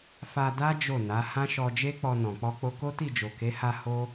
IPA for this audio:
f a˧ d a˦ d͡ʒ o˦˨ n a˨˦ h ã˦ ʃ ɔ˧ d͡ʒ e˦ k͡p ɔ˧ n ɔ̃˨ k͡p ɔ˧ k͡p o˧ k o˦ t i˦˨ d͡ʒ o˨ k e˨˦ h a˧ h o˦

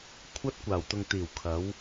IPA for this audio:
kʷʰ ɐ˥ t̚ kʷ aː˨˩ w t̪ ʊ˨ ŋ t̪ iː˨˩ w kʰ ɐ˨˧ w

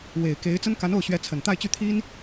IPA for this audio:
w e˨˩ ɪ̯ k e˧˥ ɪ̯ t͡s ə˥ n k a˧˥ n o˥˩ ʊ̯ ɕ ɥ ɛ˧˥ t͡sʰ ə˨˩ n t̪ a˥˧ ɪ̯ t͡ɕ y˥˩ t̪ʰ i˥ n

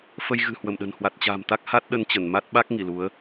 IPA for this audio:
f ə˧ j ɣ ɨ̤˨˩ h w ə˧˩ m ɗ ə̤˨˩ n h w a˨˩ t̚ t͡ɕ a̤˨˩ m t̪ a˦˥ k̚ h a˦˥ t̚ ɗ ə˧ n t͡ɕ ə˧˩ n m a˦˥ t̚ ɓ a˦˥ k̚ ŋ i˧˩ l u˨˦ ə̯

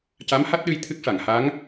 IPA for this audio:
c a˧˥ m h a˦˥ t̚ ɗ ɨ˧ j t̪ʰ ɨ˦˥ k̚ ʂ a˨˩˨ ŋ h a˧˥ ŋ

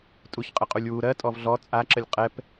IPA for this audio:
tʼ u ç qʼ ə qʼ u lʲ w u ɾ ɜ tʼ ɔ v ɮ ɔ t͡sʼ a ǁ ə lʲ qʼ ɛ p

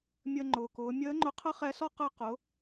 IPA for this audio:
mʲ əː˧ ŋ͡ǃ ʊː˩ k ʊː˩˧ mʲ əː˧˥ ŋ͡ǃ ʊ˧ qʰ ə˥ χ ɛ˧˥ s ɔ˥ q əː˧ q ʊ˩˧

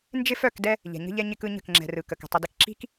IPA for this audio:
n d͡ʒ ɪ˦ f œ˦˨ k d ɛ˦ | ʎ ɛ̤˨ ɲ ə̤˦ ʎ ɛ˦ ɲ ɪ˦ k ɯ˦ ɲ ə̤˦˨ k ŋ͡ǁ ɛ̤˨ r ɯ˨ k ə˨ k ə̤˨ tˤ ə˨ d ɪ˨ k ǁ i̤˦ k

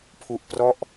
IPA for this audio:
pʰ u˨˩ ʔ p r ɔ˥˩ ʔ

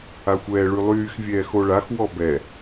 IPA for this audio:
a xʷ ɛː ɭ y lˠ yː x vʲ ɛː x o ɭ a x w ɔ b ɛ

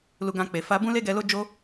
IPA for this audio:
l u˧ ɡ ã˧ k͡p e˨ f a˧ b ũ˦ l e˦ ɡ ɛ˧ l o˦ d͡ʒ o˦

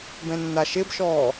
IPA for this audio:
b ɛ̃ nː a ʃ ɪ b ʃ ɔː

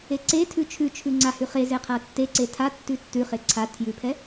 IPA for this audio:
e ǀ e tʰ ʉ t͡ʃʰ ʉ t͡ʃʰ ʉ ŋ͡ǀ a h ʉ χ e z e qʰ a tː e ǀ e tʰ a tː ʉ tː ʉ χ e ǀʰ a tʰ j ʉ pʰ ɛ

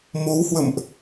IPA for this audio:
m o˨˦ w h w ə̰˧˨ m ʔ

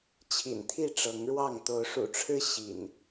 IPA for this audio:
t͡ɕʰ ḭ˨˩ n t̪ʰ i˥˨ ʈ͡ʂ ɤ˨˦ ŋ ɻ w ɑ˥˨ ŋ t̪ o˨˦ ʊ̯ ʂ ṵ˨˩ ʈ͡ʂʰ ɻ̩˦ ɕ ḭ˨˩ n

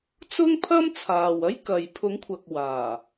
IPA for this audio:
t͡s ʊ˥ ŋ pʰ ɐ˥ m t͡sʰ aː˨ w ɐ˥ j k ɐ˨ j pʰ ʊ˨˥ ŋ kʷʰ ɐ˨ k̚ w aː˨˩

